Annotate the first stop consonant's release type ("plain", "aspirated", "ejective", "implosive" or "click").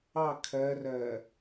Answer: aspirated